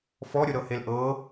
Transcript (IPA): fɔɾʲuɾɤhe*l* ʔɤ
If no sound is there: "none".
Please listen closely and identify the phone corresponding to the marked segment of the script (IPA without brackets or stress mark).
l